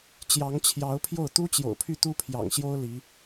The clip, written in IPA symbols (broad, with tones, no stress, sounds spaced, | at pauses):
t͡ɕ j ɑ˧˥ ŋ t͡ɕʰ j ɑ˧˥ ʊ̯ pʰ j o˥˩ ʊ̯ t̪ u˥ t͡ɕ j o̰˨˩ ʊ̯ pʰ y˥˩ t̪ u˥ pʰ j ɑ̰˨˩ ŋ ɕ j o˥ ʊ̯ l i˧˥